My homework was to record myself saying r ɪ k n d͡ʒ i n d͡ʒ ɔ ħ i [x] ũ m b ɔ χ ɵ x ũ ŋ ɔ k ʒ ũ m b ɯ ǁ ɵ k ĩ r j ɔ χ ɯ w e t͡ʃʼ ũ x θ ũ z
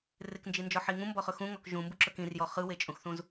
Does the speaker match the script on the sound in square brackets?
no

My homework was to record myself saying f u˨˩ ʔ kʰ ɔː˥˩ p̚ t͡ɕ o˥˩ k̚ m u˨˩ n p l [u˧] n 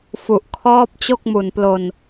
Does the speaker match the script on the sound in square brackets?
no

